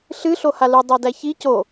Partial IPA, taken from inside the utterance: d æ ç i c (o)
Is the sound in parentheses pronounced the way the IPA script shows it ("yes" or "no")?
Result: yes